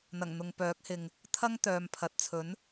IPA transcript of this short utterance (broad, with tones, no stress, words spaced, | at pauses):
n̪ɐ˨˩ŋ n̪ʊ˨ŋpœː˨˥k̚hɪ˨ŋ | t̪ʰɐ˥ŋt̪œː˨mpʰɐ˨t̚ t͡sʰɵ˨˥n